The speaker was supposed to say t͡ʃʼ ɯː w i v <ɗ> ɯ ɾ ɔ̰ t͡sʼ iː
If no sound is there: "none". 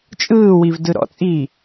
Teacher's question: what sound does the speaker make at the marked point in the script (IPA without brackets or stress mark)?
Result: d